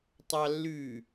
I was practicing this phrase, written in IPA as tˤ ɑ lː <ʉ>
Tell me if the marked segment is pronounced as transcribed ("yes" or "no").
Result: yes